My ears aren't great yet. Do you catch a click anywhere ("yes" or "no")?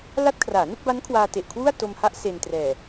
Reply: no